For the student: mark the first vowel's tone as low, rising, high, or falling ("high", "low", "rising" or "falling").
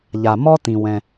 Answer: low